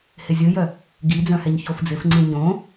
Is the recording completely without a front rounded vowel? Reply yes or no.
no